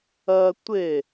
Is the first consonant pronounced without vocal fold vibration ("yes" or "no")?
yes